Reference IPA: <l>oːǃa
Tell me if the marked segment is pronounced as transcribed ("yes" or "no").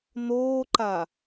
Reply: no